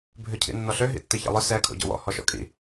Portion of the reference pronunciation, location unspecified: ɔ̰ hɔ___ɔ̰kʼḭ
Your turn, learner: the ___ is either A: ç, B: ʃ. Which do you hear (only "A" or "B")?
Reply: B